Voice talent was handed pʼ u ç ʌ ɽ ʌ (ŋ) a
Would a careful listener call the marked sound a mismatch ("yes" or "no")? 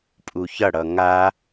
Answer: no